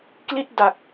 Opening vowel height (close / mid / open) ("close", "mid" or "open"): close